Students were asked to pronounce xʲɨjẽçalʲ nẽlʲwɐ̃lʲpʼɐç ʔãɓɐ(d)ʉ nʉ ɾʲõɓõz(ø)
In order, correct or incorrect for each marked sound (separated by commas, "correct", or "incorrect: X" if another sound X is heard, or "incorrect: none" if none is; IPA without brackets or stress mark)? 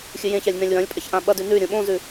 correct, incorrect: ʉ